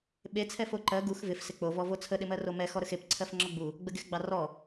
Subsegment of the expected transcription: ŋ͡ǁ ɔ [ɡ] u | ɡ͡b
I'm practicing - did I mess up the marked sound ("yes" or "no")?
yes